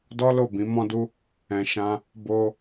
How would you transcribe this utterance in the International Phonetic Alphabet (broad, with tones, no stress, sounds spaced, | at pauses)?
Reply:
d ɔ˦ l o˦˨ b ĩ˨˦ m ɔ̃˦ d u˦ | ɛ̃˧ ʃ ã˧ | b o˧